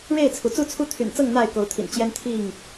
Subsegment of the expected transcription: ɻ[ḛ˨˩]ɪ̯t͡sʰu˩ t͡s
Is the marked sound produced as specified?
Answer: no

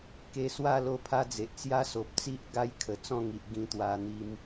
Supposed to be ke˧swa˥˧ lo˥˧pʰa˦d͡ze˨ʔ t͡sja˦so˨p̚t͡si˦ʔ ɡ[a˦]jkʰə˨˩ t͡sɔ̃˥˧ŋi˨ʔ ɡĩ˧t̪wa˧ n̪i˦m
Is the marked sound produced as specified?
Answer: yes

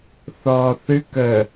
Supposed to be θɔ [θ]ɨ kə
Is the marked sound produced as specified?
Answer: yes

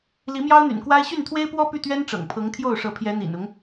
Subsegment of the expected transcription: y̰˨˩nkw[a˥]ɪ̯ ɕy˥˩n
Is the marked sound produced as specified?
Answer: yes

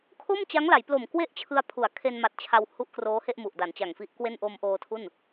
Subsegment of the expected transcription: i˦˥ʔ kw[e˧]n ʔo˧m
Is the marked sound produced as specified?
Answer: no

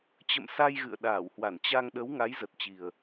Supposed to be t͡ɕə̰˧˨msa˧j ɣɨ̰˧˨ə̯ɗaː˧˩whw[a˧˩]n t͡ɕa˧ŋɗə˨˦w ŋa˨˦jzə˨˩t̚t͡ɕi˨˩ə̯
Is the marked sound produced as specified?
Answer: yes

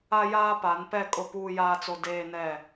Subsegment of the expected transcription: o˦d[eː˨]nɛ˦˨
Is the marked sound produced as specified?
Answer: no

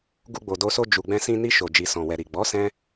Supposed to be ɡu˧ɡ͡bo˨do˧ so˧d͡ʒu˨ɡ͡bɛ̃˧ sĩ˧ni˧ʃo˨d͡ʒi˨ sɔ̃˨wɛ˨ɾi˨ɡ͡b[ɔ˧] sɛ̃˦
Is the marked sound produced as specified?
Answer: no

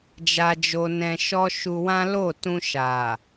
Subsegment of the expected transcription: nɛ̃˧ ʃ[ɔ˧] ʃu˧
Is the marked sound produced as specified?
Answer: yes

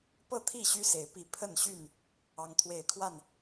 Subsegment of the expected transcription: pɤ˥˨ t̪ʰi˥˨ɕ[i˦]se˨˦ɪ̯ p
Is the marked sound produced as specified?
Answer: no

